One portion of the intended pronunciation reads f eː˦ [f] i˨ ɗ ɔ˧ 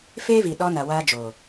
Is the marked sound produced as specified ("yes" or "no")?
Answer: no